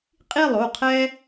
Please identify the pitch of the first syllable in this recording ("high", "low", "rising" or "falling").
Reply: falling